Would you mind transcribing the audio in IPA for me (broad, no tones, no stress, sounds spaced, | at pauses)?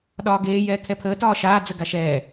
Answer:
ɗ ɒː ɡ eː j ɛː kʰ ɛ pʰ əː t ɒː ʃ aː d͡z ə ɡ a ʃ ɛː